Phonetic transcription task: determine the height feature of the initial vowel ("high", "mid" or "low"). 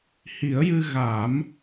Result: high